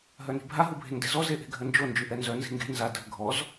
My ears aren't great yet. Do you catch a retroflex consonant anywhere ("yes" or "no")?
no